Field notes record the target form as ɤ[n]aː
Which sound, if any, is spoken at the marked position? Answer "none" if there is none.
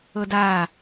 d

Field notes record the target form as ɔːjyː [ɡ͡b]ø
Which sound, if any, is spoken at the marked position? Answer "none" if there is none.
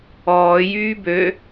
b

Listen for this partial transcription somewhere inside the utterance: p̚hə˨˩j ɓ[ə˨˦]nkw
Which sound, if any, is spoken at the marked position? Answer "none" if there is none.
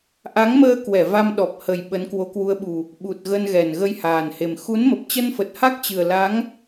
ə˨˦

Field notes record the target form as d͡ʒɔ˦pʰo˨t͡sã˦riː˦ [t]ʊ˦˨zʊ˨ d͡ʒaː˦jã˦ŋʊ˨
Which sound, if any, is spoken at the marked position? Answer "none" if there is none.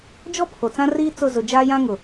t͡s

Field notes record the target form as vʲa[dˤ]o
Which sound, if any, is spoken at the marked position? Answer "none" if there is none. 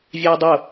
dˤ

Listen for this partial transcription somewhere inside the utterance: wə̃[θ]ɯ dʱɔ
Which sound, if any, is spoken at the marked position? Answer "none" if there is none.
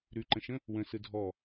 s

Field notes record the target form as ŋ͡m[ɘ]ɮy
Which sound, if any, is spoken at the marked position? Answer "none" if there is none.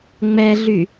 ɛ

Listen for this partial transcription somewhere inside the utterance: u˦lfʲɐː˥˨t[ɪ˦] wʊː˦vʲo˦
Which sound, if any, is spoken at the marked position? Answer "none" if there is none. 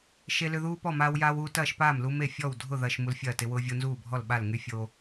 ɪ˦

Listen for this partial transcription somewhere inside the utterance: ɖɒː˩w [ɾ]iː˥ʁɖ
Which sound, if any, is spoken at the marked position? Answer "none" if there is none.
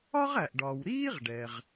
ɾ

